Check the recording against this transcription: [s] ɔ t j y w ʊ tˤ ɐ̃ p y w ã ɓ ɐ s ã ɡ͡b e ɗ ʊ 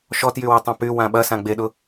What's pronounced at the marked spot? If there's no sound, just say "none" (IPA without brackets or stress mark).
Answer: ʃ